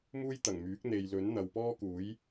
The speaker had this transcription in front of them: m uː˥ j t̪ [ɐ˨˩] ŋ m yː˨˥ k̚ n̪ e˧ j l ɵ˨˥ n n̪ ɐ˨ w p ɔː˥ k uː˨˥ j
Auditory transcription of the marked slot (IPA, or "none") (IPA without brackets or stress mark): ɐ˨˩